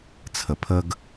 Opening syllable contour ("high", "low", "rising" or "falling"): low